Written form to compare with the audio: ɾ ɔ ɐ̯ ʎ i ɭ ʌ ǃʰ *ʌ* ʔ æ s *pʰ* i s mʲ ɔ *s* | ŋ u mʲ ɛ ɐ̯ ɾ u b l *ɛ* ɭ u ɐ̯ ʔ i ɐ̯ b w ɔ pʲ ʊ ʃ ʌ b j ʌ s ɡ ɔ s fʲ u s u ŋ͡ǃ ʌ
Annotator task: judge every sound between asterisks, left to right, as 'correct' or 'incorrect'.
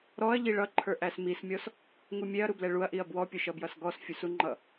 incorrect: ə˞, incorrect: m, correct, correct

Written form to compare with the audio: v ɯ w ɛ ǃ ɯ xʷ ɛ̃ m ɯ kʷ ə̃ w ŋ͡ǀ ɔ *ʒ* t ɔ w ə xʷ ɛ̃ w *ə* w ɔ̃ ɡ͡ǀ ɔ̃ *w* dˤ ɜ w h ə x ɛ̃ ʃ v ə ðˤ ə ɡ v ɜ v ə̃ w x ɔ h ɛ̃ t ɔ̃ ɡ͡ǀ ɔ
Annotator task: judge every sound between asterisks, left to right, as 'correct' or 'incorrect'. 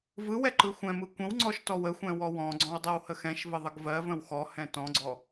incorrect: ʃ, incorrect: ɔ, correct

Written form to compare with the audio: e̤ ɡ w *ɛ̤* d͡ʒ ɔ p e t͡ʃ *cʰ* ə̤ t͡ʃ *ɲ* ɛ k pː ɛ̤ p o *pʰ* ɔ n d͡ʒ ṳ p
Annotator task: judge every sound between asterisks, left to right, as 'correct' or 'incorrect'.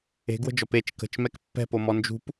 incorrect: ə̤, incorrect: k, incorrect: m, incorrect: m

